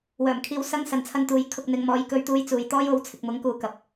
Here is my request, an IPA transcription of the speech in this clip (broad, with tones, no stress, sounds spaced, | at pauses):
w œː˨˩ m kʰ iː˧ w s ɐ˥ ŋ s ɐ˨ n t͡sʰ ɐ˧ n t̪ uː˨˥ j kʰ ʊ˧ k̚ n̪ ɪ˧ ŋ m ɔː˧ j k ɵ˧ ɥ t̪ uː˧ j t͡s uː˨ j t̪ ɔː˥ j o˨˥ w t͡sʰ ɪ˨ k̚ m ʊ˨˥ ŋ k uː˨˥ k ɐ˨ p̚